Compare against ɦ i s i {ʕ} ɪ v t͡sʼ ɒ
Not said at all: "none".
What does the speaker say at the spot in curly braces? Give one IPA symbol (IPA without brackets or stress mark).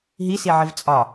ʕ